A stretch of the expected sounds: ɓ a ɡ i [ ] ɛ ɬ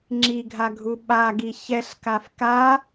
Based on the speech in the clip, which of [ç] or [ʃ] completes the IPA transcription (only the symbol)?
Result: ç